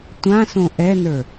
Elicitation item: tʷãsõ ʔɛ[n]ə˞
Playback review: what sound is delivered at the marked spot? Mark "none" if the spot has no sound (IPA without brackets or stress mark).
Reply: n